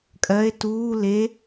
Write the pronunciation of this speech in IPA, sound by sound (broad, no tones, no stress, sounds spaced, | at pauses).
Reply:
kʼ ɜ e̯ t uː l e